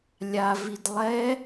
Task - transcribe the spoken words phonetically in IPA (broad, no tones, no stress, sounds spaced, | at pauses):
lʲ a v i d lˠ ɛ